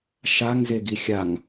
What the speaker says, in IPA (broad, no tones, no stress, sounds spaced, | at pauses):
ʃ a ŋ z e ɡ i xʲ a ŋ